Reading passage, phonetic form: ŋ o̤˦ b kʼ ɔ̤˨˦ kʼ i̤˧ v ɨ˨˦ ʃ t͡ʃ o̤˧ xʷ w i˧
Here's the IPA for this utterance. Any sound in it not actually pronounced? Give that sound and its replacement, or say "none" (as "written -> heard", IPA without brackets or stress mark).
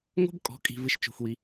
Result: ɨ˨˦ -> ɨ˧